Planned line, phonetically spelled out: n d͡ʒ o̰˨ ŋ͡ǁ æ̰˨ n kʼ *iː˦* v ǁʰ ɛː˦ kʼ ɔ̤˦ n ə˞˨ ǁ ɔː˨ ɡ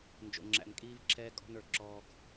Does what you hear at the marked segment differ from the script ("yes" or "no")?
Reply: no